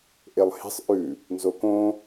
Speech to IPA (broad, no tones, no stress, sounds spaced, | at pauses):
ʔ e lˠ h e̤ sˤ ʔ ʉ | n z o k õ